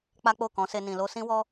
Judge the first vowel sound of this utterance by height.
low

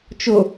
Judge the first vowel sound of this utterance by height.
high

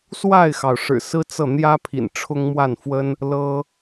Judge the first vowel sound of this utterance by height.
low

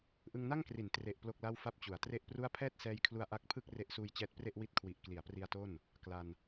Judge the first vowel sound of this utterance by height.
high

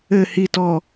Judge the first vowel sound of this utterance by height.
mid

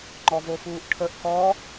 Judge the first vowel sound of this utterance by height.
mid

